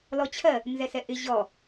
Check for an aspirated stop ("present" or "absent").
present